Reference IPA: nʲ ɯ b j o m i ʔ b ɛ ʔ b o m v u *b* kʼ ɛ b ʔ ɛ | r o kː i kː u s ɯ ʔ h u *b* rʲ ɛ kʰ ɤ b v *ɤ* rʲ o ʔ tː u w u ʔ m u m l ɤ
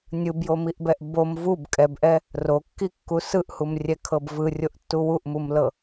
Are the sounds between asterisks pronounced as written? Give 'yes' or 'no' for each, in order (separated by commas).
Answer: yes, no, no